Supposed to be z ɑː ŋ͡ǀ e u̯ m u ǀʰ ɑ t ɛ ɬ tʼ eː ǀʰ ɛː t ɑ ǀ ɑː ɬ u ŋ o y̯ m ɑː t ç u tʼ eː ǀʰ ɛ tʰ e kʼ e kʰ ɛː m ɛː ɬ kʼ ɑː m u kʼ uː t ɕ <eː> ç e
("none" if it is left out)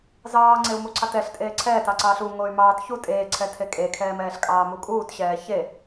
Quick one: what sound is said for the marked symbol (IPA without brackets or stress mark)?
ɛː